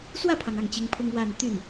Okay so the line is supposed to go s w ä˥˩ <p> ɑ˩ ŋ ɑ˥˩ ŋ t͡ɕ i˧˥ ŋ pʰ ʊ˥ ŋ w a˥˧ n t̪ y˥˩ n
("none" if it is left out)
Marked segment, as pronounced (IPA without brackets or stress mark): pʰ